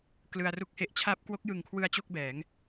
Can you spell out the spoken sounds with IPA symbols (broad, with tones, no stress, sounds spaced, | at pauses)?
k l ɯ˧ a̯ r u˥˩ k̚ h e˥˩ ʔ t͡ɕʰ aː˦˥ p̚ k w o˦˥ k̚ j ɯ˨˩ ŋ kʰ w ɯ˧ a̯ t͡ɕ o˥˩ k̚ b ɛː˩˦ ŋ